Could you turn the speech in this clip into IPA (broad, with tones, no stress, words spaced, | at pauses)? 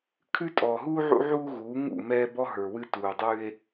kʰʉ˦ tʼɔː˨ɦuː˦ ʕṵ˦ʕuː˦ ɣuː˨˦ ŋṵ˦˨ mɛː˦bɔ˦ɦə˞˨wɨ˦ tuː˨dˤʉ˦e̯